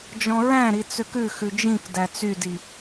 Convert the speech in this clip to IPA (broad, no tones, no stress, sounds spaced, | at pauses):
d͡ʒ ɔ̃ ɹ æ̃ ɾ i t͡s ø k ʉ x ʉ d͡ʒ ĩ k d æ t͡s y d i